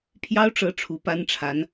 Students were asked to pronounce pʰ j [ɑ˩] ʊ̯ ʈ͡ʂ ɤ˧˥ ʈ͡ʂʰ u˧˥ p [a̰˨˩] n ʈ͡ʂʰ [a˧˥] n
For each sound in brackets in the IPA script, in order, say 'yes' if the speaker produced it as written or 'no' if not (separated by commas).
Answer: no, no, yes